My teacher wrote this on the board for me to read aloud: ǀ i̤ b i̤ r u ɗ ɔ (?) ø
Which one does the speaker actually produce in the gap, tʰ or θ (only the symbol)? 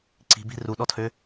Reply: tʰ